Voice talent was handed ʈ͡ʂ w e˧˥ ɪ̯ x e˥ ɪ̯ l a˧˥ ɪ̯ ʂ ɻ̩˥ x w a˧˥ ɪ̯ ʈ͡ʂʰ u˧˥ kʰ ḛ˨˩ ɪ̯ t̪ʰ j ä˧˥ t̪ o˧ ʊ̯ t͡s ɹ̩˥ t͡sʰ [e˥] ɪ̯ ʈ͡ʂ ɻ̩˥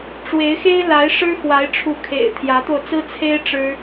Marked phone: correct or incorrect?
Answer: correct